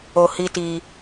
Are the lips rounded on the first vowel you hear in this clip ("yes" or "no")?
yes